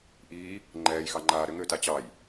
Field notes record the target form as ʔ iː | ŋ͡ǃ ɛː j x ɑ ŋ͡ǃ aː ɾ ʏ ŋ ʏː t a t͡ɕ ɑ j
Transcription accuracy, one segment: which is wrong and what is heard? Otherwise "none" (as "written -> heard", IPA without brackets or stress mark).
none